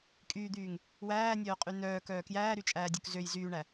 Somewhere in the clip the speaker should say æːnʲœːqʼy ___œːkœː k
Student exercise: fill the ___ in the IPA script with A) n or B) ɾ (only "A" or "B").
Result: A